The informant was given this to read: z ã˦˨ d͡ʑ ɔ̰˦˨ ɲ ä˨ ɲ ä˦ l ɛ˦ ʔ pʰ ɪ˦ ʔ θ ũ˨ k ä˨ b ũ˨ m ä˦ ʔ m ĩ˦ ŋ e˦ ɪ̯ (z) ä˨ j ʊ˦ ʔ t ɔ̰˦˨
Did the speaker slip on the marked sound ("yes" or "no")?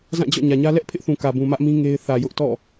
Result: yes